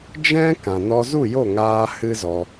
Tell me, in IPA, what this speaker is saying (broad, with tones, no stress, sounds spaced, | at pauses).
d͡ʒ ɛ̃˦ k ã˨ n ɔ˧ z u˦˨ j o˦˨ ŋ aː˧ h ɨ˦ z ɔ˧